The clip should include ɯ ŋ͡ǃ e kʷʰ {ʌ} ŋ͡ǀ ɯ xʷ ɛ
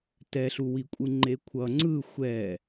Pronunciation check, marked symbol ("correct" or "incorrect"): correct